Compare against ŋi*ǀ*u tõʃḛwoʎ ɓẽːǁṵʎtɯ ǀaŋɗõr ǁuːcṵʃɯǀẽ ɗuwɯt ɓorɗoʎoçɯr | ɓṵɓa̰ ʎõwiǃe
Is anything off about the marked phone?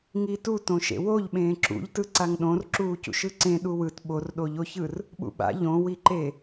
yes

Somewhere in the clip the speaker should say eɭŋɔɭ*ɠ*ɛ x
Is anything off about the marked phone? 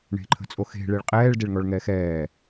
yes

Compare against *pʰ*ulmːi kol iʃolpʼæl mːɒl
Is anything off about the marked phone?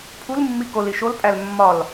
no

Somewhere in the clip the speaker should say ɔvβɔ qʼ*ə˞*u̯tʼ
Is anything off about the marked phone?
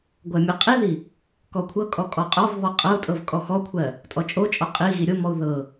yes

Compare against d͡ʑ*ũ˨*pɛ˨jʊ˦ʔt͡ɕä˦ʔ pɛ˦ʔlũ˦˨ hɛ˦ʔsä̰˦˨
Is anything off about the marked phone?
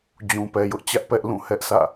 no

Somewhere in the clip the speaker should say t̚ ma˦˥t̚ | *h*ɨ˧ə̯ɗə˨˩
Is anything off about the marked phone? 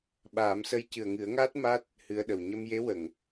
no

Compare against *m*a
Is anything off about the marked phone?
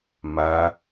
no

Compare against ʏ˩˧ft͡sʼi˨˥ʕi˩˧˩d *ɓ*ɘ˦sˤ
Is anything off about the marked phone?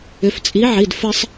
yes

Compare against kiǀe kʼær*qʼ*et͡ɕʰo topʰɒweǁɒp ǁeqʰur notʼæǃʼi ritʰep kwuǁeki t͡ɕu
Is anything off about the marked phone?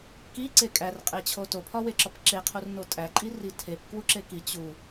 no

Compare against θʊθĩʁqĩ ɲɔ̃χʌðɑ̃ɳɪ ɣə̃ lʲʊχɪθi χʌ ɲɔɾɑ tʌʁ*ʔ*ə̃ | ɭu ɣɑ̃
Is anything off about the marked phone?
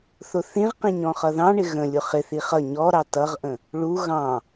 no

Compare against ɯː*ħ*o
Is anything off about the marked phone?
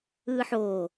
no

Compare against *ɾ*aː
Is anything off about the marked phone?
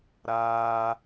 no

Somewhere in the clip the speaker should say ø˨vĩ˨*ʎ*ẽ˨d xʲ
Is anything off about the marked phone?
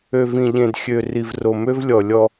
no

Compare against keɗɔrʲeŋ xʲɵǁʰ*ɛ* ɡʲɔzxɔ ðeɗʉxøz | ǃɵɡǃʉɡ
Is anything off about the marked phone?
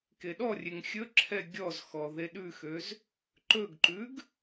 no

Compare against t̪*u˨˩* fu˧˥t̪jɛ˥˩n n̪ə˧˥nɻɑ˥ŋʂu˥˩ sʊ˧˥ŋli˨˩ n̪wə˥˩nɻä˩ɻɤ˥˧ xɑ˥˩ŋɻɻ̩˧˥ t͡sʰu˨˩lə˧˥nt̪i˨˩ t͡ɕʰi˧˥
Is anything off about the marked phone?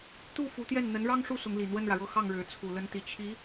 yes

